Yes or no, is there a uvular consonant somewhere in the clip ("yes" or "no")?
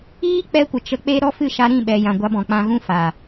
no